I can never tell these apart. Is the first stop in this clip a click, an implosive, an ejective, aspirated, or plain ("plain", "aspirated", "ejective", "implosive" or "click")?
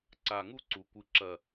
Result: click